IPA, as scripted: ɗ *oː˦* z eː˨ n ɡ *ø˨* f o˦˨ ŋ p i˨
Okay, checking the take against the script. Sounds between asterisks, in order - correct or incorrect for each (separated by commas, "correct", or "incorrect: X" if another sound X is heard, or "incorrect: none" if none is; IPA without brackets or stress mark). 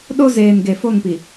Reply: incorrect: o˦, incorrect: e˨